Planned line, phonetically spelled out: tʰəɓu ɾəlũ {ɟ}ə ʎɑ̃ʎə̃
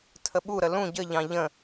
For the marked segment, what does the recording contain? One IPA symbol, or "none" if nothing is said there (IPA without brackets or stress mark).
ɟ